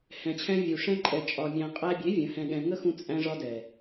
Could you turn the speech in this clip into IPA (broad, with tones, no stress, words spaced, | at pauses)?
hɛ̃˨t͡ɕʰɛ̃˧ vʲu˨ ʂɛ̃˧ǃʼɛ˨t͡ʃʼɒ˨mʲæ̃˨ qʼæ˧bʲe˨˦ vʲə̃˨˦hɛ̃˧ɠɛ̃˧ ŋə˦xũ˧ t͡sʼæ̃˧ʐɒ˧dɛ˨